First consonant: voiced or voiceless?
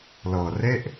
voiced